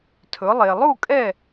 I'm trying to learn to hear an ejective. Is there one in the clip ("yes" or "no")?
yes